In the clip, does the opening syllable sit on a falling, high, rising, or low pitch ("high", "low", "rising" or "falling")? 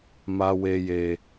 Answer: high